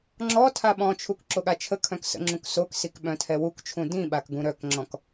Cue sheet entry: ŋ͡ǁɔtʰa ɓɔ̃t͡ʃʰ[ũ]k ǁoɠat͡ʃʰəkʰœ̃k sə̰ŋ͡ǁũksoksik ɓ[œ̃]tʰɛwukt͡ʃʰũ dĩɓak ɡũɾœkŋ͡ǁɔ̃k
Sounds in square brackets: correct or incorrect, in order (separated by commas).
incorrect, correct